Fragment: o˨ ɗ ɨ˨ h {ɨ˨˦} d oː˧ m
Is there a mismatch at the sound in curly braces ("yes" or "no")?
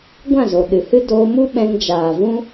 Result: yes